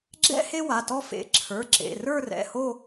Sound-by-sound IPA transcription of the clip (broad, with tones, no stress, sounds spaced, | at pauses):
ɡ͡ǁ ɛ̰˥ h e˥ w a˩˧˩ t ɔ˥ f ḛ˩˧˩ ǁʰ ə˞˩˧˩ ǁ ḛ˩˧˩ r ə˞˥˧ r ɛ̰˩˧˩ h o˥˧